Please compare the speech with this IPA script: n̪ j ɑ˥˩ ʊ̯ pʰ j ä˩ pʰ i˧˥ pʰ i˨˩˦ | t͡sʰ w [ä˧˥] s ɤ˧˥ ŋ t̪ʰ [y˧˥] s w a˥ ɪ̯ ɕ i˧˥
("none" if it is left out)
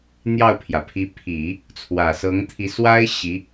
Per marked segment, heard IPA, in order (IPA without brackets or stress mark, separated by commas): ä˨˩, i˧˥